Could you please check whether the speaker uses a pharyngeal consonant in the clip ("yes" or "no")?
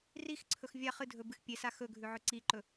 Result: yes